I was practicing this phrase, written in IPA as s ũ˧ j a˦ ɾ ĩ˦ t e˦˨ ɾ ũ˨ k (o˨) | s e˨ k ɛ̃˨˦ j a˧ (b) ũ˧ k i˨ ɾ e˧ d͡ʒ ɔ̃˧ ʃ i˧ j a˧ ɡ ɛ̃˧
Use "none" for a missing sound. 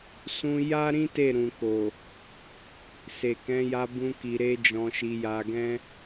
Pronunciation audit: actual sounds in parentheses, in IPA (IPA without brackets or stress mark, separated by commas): o˨, b